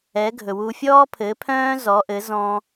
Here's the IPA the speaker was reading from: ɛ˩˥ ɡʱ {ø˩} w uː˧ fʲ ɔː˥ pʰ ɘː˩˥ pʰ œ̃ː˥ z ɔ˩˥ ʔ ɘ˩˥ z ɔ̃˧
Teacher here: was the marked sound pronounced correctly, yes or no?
no